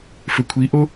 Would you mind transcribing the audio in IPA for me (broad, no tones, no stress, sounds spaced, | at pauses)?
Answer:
f ø kʷʰ i ʔ o